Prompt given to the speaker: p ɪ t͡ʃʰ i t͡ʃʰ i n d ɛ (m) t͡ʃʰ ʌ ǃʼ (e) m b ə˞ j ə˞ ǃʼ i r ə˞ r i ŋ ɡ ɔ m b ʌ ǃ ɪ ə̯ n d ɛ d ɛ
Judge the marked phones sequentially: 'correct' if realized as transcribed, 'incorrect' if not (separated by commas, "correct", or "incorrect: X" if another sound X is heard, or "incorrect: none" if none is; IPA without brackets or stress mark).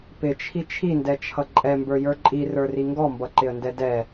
incorrect: none, incorrect: ɛ